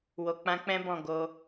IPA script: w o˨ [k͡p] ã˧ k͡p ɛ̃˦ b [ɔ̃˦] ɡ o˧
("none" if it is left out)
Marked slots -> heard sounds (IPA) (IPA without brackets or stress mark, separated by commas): k͡p, ɔ̃˦˨